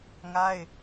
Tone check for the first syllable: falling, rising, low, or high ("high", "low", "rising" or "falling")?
high